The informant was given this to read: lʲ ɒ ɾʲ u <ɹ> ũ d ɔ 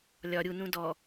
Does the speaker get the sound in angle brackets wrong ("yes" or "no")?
yes